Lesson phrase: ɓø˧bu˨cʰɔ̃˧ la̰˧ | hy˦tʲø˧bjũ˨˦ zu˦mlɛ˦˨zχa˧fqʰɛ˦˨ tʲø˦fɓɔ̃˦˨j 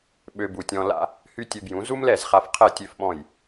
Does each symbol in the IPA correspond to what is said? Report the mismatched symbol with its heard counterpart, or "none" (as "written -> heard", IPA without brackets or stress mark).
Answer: cʰ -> tʲ